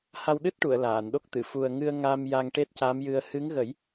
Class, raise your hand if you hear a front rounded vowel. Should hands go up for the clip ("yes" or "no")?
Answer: no